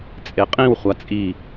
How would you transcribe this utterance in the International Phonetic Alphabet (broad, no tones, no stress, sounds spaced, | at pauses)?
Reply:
t͡sʼ e qʼ ĩ w χʷ a t͡sʼ i